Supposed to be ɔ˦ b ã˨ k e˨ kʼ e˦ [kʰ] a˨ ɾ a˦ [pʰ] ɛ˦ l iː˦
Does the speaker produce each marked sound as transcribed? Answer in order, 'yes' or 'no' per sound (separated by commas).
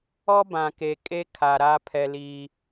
yes, yes